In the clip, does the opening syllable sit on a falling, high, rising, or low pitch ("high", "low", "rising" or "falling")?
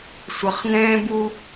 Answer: low